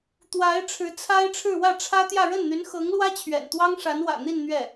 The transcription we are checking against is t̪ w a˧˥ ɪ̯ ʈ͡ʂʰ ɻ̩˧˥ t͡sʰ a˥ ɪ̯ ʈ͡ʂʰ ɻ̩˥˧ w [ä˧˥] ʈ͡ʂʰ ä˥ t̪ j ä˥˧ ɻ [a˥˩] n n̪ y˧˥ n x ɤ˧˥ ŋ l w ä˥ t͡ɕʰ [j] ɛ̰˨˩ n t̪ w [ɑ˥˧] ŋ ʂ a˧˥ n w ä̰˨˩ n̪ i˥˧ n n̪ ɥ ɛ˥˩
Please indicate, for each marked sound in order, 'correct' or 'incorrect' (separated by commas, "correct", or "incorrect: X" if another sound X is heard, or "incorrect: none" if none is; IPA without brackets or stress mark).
incorrect: ä˥˩, incorrect: ə˥˩, incorrect: ɥ, incorrect: ɑ˥